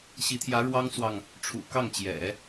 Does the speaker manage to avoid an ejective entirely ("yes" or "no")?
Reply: yes